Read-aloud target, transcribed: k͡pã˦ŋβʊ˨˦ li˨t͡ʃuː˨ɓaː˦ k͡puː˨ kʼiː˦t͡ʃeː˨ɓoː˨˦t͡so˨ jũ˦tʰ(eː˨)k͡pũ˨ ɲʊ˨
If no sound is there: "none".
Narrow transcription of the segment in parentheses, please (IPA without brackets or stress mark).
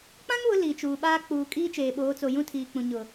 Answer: iː˨